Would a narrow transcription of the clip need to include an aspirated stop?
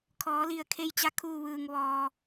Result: yes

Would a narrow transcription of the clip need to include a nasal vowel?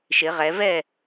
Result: no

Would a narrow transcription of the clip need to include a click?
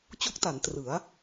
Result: no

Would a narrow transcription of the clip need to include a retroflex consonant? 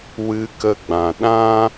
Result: no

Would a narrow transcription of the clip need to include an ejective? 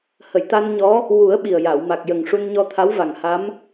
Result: no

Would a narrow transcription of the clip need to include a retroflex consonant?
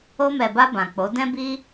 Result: no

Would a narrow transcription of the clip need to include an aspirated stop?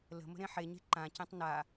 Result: no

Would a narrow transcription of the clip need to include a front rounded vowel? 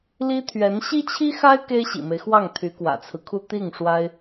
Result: yes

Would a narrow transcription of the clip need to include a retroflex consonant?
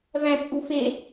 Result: no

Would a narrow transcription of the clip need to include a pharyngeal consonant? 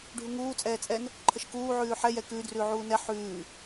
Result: yes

